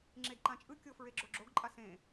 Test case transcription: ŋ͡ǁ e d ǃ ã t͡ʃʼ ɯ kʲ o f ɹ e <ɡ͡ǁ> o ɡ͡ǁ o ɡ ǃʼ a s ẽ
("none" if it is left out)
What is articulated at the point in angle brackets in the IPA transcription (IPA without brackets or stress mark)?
ɡ͡ǁ